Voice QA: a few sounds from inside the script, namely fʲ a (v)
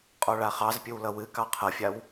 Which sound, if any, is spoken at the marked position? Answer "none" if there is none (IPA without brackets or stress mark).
w